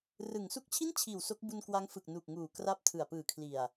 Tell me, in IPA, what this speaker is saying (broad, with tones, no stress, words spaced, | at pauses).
rɯ˩˦ŋ su˦˥k̚t͡ɕʰi˥˩nt͡ɕʰiː˨˩w so˦˥k̚bu˧nkwa˦˥ŋ fɯ˨˩k̚nu˨˩k̚ŋuː˨˩ kra˦˥p̚tʰɯ˨˩a̯pɯː˨˩kʰli˨˩a̯